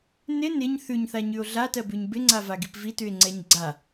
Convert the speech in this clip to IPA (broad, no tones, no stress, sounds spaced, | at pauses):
n ɪ n ɪ ɲ θ ʉ ɲ θ a ɲ ʉ o̯ ɮ a t ɜ b ʉ ɲ b ɪ ŋ͡ǀ a v a ɡ i p v i t ʉ e̯ ŋ͡ǀ ɛ ɲ ɡ͡ǀ a